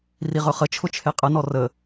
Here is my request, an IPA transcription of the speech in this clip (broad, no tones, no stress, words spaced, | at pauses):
riʁɵχət͡ʃʰʊ t͡ʃʰeqʼənɔ rə